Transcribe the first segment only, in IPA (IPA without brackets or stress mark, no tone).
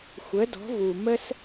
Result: xʷ